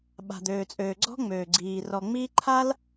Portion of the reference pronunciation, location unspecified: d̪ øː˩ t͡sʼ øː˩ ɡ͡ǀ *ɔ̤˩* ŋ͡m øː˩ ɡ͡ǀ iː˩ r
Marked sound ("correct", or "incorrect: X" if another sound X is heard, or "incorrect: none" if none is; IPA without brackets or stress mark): incorrect: ɔ̤˥